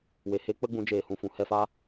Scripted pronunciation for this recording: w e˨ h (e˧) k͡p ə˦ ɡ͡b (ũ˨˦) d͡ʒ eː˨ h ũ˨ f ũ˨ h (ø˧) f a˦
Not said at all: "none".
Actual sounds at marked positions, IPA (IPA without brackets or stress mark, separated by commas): e˦, ũ˨˦, ɛ˧